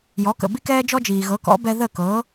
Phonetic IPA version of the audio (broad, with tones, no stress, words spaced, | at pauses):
jɔ˩˥kə̰˩bi˥ kɛː˥d͡ʒɔ˥d͡ʒiː˩ɣɤ˩˥ kɔ̰˩˥bɛ˧ ðə˥˩kɤː˩˥